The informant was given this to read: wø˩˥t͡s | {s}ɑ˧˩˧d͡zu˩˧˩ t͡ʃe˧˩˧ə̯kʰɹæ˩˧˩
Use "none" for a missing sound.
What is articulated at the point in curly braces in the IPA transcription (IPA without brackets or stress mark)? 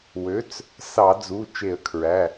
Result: s